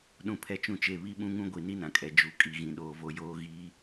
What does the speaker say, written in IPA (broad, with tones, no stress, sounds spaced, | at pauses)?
ɗ ũ˦ pʰ ɛ˦ t͡ʃ ũ˦ t͡ʃ e˦˨ β i˦ ɓ ũ˦ ŋ ũ˦ ɡʷ i˨ n i˦ n ã˨ kʼ ɛ˨ d͡ʒ u˨ kʼ i˨ ɣ ĩ˨ ɗ oː˨ v o˦ j oː˦ ɣ iː˨˦